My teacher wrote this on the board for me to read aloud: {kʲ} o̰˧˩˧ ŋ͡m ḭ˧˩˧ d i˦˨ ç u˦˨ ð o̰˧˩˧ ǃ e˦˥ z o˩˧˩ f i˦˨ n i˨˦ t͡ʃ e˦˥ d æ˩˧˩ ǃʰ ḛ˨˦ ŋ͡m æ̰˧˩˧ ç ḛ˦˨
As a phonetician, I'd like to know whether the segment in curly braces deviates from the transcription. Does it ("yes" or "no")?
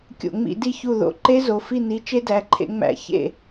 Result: no